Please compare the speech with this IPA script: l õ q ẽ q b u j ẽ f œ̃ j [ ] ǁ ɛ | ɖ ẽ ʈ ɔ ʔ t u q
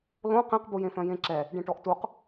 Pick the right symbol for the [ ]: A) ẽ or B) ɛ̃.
A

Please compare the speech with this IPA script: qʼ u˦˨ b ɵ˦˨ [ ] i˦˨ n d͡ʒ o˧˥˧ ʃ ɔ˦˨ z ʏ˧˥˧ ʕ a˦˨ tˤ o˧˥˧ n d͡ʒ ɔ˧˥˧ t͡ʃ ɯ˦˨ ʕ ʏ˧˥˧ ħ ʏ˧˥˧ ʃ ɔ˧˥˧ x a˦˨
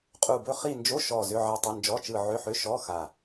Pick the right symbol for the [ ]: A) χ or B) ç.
A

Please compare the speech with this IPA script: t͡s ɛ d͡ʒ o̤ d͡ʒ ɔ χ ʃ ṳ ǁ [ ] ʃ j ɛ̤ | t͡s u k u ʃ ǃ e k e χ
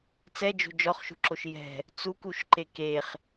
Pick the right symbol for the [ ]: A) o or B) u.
A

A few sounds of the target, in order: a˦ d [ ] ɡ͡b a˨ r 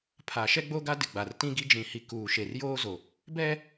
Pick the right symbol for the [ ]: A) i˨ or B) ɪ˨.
B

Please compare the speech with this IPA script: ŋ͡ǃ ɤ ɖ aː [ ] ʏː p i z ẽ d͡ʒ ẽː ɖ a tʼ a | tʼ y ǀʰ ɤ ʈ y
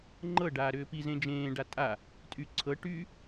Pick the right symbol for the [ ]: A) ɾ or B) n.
A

